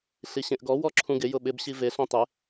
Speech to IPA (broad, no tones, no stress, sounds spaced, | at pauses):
ɬ i ɕ ẽ ʔ ɡ ɔ w ɔ ǁʰ ũ ɡ ɪ j ʊ ɓ ɪ b ɕ i v e ɬ õ tˤ ɪ